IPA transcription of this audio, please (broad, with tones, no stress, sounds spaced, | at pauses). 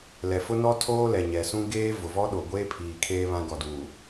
l ɛ˨ f ʊ˦ n ɔ˦ tʰ oː˦ l ɛ˨ ɲ ɛ˨ s ũ˦ ɡ eː˦ v ʊ˨ v ɔ˦ ɗ o˨ ɡʷ eː˦ pʰ iː˨ kʰ eː˦ β ã˦ ɡ ɔ˨ d uː˨